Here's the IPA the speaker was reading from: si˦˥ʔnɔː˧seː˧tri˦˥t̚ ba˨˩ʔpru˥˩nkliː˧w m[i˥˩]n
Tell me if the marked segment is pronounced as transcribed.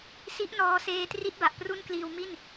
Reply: yes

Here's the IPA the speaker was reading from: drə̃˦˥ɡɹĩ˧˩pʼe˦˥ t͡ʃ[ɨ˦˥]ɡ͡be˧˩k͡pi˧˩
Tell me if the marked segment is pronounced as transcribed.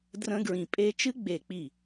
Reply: yes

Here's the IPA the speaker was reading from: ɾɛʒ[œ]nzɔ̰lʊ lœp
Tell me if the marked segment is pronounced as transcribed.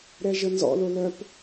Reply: no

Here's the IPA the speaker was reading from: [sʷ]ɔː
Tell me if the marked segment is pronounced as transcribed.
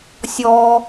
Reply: no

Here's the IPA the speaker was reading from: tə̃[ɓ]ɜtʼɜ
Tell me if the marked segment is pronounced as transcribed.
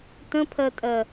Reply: no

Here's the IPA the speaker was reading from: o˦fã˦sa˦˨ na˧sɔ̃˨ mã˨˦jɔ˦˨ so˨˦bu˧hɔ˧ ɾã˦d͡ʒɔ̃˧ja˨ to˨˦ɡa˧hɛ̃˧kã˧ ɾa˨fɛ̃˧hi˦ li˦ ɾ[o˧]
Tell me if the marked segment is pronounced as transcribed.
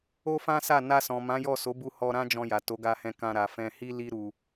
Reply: no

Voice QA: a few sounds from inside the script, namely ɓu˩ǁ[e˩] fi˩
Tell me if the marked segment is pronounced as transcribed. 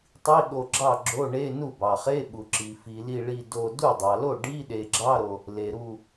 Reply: no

